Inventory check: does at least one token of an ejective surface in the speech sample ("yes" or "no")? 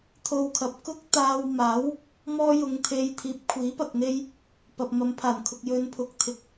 no